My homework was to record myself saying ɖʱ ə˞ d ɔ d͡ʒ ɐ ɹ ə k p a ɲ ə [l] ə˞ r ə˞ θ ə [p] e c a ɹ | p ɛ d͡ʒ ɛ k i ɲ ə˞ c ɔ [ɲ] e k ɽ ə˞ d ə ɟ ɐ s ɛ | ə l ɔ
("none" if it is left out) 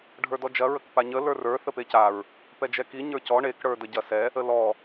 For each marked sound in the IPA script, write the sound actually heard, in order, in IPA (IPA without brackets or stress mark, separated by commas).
l, p, ɳ